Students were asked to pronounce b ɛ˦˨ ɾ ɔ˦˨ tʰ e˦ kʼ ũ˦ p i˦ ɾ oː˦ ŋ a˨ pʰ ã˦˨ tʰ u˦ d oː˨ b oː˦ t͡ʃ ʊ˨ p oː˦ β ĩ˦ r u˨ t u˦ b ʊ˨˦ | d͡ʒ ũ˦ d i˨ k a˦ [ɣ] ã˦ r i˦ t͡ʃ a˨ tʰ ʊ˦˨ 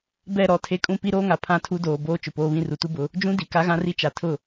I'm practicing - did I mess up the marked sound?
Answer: no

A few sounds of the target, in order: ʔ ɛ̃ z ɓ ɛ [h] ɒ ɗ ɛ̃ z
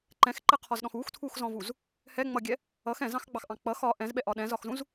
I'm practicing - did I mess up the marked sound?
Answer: yes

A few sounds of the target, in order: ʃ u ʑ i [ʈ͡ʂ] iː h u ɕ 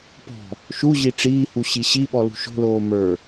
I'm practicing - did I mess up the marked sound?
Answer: no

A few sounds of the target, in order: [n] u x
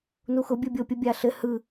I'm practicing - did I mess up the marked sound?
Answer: no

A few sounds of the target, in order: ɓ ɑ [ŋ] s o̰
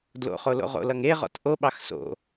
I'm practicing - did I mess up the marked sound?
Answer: yes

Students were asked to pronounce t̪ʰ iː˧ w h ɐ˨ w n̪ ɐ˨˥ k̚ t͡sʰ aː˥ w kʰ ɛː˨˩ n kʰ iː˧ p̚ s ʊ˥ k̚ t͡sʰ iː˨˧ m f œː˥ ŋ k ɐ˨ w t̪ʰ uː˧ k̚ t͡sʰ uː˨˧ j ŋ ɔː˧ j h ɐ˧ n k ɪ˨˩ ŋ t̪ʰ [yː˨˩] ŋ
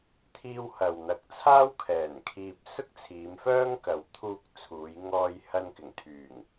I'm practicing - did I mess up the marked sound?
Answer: no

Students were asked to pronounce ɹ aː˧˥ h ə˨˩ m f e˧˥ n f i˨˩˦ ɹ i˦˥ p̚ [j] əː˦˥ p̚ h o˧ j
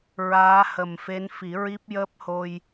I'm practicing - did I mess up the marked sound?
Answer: no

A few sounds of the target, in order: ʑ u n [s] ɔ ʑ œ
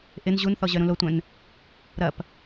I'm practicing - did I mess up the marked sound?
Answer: yes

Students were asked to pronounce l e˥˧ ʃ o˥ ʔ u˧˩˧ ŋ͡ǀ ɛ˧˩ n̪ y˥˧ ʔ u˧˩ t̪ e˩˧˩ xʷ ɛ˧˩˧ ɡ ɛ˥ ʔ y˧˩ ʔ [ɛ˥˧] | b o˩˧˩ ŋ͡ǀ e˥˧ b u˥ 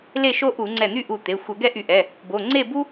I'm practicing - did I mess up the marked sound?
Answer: yes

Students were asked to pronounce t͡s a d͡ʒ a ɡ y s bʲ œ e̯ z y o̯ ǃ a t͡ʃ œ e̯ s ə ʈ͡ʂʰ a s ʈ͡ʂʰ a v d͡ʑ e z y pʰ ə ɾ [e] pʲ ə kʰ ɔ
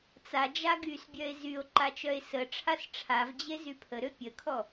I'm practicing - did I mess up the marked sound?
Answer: yes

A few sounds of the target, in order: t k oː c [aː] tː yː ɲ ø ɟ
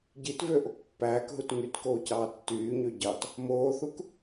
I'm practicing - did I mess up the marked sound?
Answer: yes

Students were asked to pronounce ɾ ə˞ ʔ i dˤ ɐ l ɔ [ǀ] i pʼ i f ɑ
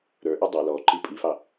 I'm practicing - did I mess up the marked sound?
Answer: yes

